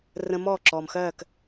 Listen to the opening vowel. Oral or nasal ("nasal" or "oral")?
nasal